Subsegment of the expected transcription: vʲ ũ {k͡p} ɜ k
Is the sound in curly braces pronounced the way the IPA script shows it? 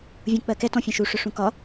yes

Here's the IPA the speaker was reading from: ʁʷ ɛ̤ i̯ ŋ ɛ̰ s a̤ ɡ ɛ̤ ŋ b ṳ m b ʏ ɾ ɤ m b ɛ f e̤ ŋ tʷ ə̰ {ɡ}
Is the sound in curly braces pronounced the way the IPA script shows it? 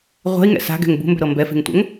no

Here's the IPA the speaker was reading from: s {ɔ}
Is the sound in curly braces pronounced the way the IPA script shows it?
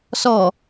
yes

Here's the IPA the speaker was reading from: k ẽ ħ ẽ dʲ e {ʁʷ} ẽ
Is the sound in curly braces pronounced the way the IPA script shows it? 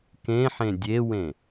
no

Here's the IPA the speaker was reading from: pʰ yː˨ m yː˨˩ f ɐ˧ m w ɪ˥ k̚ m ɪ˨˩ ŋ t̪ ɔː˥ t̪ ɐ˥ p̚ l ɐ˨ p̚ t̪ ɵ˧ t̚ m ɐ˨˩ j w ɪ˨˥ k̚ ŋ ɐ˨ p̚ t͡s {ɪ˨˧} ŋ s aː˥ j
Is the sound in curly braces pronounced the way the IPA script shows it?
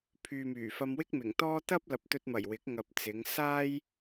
yes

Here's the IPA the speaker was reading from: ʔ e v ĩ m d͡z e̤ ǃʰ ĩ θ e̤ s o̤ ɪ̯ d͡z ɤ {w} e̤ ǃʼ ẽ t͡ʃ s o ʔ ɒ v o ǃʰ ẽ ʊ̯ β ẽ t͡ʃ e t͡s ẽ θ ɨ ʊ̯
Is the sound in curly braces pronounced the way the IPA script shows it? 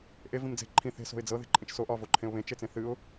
no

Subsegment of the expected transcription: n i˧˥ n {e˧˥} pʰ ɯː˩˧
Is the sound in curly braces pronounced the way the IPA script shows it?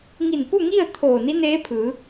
no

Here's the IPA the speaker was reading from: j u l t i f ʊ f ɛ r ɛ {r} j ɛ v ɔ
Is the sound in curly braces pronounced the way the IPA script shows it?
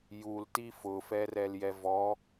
no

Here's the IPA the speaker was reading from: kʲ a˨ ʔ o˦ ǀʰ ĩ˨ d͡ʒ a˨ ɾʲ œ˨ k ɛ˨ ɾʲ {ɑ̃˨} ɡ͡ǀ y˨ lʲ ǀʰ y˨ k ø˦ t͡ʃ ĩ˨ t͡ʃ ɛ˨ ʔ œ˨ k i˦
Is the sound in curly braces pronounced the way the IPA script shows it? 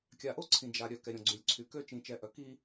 no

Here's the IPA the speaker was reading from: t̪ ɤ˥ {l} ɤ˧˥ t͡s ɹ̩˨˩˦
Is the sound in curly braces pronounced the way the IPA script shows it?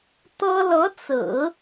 yes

